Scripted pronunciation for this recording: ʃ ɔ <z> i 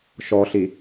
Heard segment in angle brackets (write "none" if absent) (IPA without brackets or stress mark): ɬ